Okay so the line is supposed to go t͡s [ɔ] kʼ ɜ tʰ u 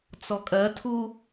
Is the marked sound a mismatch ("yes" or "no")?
no